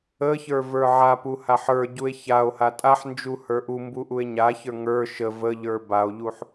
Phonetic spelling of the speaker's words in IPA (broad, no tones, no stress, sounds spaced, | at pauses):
ə ç ə˞ v ə˞ ʕ a p u h a ħ ə˞ ɟ u e̯ ç a o̯ h a tʼ a ħ n d͡ʒ u h ə˞ ʔ u m b u ʔ u e̯ ɲ a ç ə˞ ŋ ə˞ ʃ ə v ə ʎ ə˞ b a o̯ ʎ u ħ